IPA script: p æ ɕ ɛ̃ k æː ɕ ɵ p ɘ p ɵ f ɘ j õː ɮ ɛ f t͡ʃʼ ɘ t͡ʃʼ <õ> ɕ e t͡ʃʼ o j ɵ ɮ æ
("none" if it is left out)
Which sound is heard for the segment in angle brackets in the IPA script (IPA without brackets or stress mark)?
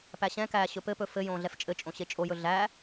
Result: õ